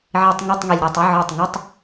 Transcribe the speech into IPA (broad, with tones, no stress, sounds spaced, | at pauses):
ʕ i˧˩˧ tˤ ŋ ɔ˧˥˧ tˤ ŋ i˩ lʲ ɾ ɛ˧˩ tˤ ɪ˧˥˧ ʕ ɔ˧˩ tˤ ŋ ɪ˧˥˧ tˤ